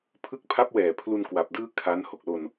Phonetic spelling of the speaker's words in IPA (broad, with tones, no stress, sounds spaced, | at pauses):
pʰ ɯ˦˥ k̚ pʰ a˦˥ p̚ w ɛː˨˩ pʰ l u˧ n k w a˨˩ p̚ d ɯː˥˩ kʰ a˦˥ n h o˨˩ k̚ l o˧ n